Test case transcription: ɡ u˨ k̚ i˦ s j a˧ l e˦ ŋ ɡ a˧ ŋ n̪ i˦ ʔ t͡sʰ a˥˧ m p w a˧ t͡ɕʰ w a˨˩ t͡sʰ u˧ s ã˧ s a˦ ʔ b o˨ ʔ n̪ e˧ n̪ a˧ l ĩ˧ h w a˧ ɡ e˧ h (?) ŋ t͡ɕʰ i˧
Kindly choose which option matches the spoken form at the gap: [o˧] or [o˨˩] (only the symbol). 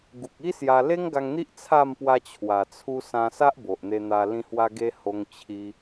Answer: o˧